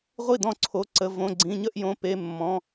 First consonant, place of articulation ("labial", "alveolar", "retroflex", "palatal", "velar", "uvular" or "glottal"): uvular